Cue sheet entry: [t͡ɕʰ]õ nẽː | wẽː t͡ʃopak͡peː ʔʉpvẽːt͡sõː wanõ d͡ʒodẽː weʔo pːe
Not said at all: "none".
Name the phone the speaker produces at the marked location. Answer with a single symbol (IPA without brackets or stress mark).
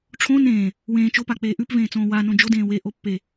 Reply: ʈ͡ʂʰ